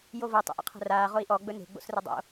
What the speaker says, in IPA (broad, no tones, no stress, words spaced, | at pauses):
jovo tˤə̰ʔə̰qʰə̤raː ʁoi̯ʔɔ ɡ͡bɵne̤ ɡ͡bo̰srɵdˤo̰